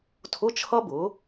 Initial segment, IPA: tʰ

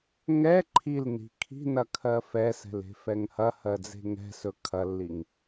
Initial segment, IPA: ŋ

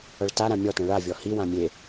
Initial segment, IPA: ʌ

